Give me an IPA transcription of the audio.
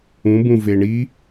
ũ b ũ v e ɳ i

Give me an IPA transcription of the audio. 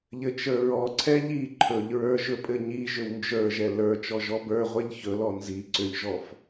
ʎ ɘ t͡ʃ ə˞ ɹ ɔ ǀʰ ɛ ʎ i ǃʰ ɵ ʎ ɹ ə˞ ʒ ɵ pʼ ɘ ɲ i ʒ ʏ w n d͡ʒ ə˞ ʒ ɛ l ə˞ t͡ʃ ɔ ʒ ɔ b ə˞ ʁʷ ɛ ʎ ç ɵ l ɔ n z i ǀ ʏ ʎ ʒ ɔ f

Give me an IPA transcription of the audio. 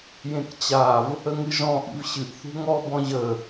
j ẽ k t͡ɕ a v | ə ŋ ɨ ʒ ɔ̃ ʔ ḭ v ɕ ɨ ʔ θ ṳ ŋ ɔ b ɔ̃ ʑ ə

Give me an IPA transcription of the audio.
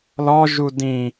l ɔ ʒ u d ĩ

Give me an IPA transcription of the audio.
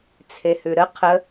t͡sʰ e h ʉ ɾ ə qʰ ə

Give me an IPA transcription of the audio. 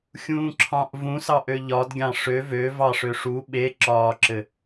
xʲ ũː ǁʰ ɑ̃ ʔ v ũ s ɑ ʔ ø ʎ ɒ d ɡʲ ɑ̃ ʂ ø v ø v ɑ ʂ ø ʂ u ɓ e ǁ ɒː ǁ ɘ

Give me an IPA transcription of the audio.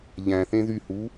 ʎ æ̃ θ ẽ ð y h u

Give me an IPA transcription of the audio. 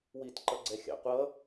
w i t ǃ ʌ ɡ͡ǀ ɛ xʲ ɑ̰ qʷ ʌ

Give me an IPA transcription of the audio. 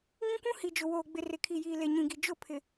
ŋ ĩ˦ kʷ ũ˦ h i˨ d͡ʒ ʊ˨ w oː˨ ɡ͡b ɪ˨ r ɪ˨ kʰ i˨ j iː˨ l e˨ ɲ ĩ˨ ɡ i˨ d͡ʒ ʊ˦˨ pʰ ɪ˨

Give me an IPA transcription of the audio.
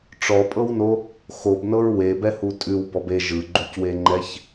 ʈ͡ʂ ɔ pʼ ɤ w n o | x o b n ɤ ɹ w e b ɛ h u tʼ ʉ w b ɔ b e ʒ ɯ ɡ͡ǃ u c w e ŋ͡ǃ ɛ ç

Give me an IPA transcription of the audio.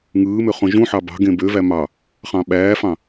ŋ ɯː m ø χ õ ʒ ũ ħ ɑ b ɑ̤ ɡ ẽ b ø v æ m ɑ | χ ɑ̃ ɓ æː f ɑ̃

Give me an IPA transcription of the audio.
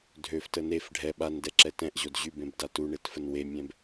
dʱ ø f t ə n e f ɖʱ ɛ ɓ a n d ɛ ǁ ɛ t ɛ̃ ʔ ʑ o d ʑ y b ẽ b d a t u ɳ e t f ə n w e mʲ ɛ̃ b

